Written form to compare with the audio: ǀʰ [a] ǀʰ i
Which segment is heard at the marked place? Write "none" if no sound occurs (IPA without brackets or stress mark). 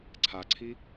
a